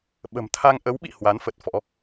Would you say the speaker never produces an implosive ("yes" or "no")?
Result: no